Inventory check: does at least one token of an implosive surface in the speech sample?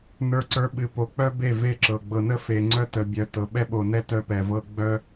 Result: yes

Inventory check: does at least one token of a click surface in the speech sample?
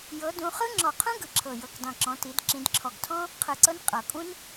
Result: yes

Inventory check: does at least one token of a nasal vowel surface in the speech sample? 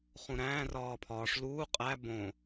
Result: yes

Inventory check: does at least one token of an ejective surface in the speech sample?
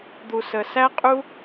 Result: yes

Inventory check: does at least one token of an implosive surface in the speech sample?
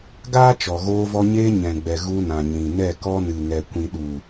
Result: yes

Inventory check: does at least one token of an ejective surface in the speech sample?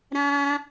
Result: no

